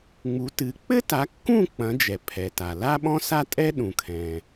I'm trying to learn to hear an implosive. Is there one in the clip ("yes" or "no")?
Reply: yes